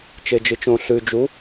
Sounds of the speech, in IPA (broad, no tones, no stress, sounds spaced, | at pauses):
t͡ʃ e d͡ʒ ɨ t͡ʃ õ ɬ ʉ d͡ʒ u